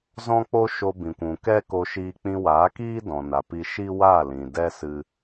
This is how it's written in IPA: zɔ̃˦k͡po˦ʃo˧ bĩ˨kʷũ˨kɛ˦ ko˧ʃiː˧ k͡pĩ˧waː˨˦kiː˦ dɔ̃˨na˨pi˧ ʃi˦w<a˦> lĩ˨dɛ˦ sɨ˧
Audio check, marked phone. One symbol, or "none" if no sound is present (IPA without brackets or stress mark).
a˦˨